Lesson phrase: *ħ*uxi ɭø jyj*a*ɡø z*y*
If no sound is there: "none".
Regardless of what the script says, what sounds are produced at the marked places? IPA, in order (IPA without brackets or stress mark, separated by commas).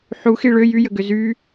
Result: ħ, ə, y